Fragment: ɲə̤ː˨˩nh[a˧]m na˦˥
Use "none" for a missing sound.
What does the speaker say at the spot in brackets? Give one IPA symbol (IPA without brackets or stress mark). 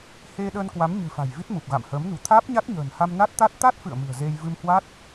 a˧